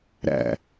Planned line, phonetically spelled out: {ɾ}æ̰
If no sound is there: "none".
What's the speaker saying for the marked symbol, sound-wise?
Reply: ɾ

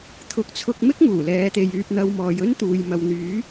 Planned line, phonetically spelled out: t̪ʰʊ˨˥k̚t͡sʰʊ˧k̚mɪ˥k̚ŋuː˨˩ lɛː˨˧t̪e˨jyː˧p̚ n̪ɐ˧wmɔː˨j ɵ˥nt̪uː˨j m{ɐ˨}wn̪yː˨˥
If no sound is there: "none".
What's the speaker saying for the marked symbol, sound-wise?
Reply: ɐ˨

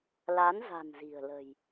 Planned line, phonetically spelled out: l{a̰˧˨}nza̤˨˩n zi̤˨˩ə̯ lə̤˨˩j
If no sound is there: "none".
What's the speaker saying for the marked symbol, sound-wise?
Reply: a˨˦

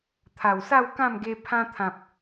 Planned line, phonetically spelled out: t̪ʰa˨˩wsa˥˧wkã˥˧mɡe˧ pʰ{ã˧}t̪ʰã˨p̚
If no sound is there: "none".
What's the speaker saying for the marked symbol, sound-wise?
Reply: ã˧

